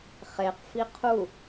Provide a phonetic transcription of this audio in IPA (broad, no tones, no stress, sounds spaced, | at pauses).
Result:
χ e q f i qʰ u